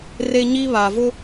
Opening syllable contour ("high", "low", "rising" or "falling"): high